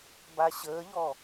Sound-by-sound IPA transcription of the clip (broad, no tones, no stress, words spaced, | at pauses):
baɕəːʎɔ